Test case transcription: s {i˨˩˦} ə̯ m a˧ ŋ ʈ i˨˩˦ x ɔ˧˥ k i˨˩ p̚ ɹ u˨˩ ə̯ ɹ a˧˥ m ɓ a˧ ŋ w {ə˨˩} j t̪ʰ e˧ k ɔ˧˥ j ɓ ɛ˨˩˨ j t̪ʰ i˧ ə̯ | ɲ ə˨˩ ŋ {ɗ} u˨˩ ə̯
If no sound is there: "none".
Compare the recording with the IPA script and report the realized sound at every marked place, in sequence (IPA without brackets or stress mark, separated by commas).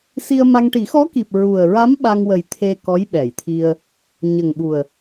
i˧, ə˨˩, ɓ